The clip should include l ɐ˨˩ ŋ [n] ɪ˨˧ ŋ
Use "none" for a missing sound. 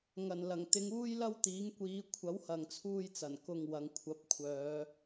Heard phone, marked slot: t̪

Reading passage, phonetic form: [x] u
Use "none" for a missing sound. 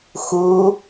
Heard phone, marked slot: x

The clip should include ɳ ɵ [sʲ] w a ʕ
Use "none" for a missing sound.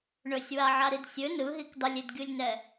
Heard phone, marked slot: sʲ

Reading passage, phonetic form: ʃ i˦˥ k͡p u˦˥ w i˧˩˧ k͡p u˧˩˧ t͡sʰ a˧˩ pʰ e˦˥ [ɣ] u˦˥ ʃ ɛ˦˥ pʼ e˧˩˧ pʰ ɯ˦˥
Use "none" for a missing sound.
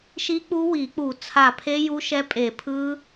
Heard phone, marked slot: j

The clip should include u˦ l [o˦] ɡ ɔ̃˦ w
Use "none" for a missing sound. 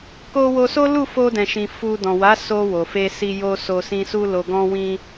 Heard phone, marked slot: o˧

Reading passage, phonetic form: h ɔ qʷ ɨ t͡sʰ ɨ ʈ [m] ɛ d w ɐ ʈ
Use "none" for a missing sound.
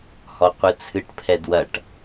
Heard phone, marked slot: pʰ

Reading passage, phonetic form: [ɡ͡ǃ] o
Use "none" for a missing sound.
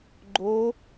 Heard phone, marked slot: ɡ͡ǃ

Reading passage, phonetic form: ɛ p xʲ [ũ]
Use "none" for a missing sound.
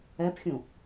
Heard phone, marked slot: ũ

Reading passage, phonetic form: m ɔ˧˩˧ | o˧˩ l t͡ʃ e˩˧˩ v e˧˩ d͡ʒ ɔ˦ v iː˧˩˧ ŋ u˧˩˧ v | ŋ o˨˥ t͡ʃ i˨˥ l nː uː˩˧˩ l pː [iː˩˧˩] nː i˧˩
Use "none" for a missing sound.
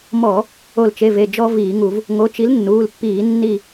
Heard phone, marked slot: iː˧˩˧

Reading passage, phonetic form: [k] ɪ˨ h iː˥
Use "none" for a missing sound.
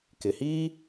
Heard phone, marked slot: k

